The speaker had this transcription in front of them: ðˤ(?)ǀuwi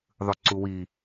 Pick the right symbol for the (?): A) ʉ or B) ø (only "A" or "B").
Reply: A